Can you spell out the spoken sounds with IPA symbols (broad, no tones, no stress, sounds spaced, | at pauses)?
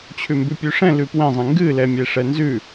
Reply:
t͡ɕʰ ʉ m b ʉ pʲ ʉ ʂ ɛ̃ l ʉ p w ɛ̃ zˤ ẽ ŋ ɡ ɨ l ɛ mʲ e ʂ ɛ n z ʉ